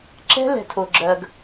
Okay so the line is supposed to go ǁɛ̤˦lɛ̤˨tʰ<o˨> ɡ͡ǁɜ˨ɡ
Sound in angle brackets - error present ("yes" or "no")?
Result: no